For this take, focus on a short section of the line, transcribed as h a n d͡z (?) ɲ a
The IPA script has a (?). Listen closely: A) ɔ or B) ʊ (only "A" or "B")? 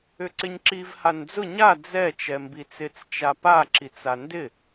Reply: B